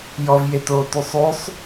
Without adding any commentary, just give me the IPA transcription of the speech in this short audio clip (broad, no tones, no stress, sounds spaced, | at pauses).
j ɔ v j e t oː t ʉ sˤ ʉ sˤ